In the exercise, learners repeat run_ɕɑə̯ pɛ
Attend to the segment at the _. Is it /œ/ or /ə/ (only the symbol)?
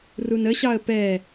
ə